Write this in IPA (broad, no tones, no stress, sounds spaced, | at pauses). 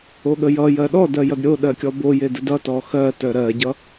o ɠ ə j ʌ j ɜ ɗ ɔ d ɜ j ʌ d ɾʲ o ɗ ɜ kʲ ɔ b o j e d ə d ʌ t ɔ x ɜ t œ ɾ ɜ ɟ ʌ